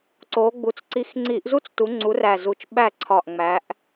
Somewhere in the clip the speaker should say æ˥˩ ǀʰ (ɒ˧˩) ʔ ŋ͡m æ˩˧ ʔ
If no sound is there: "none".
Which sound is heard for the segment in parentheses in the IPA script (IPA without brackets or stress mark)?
ɒ˧˩